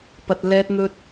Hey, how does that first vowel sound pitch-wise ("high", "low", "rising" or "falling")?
low